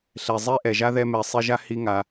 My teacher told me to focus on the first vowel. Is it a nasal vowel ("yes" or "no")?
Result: no